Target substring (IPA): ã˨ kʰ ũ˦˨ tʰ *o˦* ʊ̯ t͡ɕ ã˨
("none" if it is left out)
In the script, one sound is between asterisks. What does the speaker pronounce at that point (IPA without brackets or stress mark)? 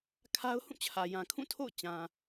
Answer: o̰˦˨